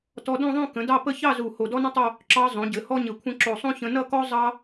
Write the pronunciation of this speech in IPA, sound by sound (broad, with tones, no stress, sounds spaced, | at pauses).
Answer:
t ɔ˧ d õ˥˧ ðˤ õ˥˧ k ə̃˩˧ d ɑ˥˧ p ə˥˧ ç ɑ˥˧ z u˧˩ h o˧˩ d ɔ˥ n ə̃˥ tˤ o˥˧ | ǁ ɑ˧ zˤ õ˩˧ ɟ ɘ˩˧ h ɔ˥ ɲ ɘ˧˩ kʷʰ ə̃˥ ǁ o˧˩ sˤ õ˥ ç ə̃˧ n ʌ˥˧ k ɔ˥ zˤ ɑ˥